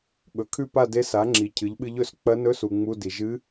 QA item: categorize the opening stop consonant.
implosive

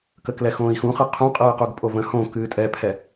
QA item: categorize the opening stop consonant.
plain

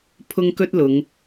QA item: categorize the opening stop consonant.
aspirated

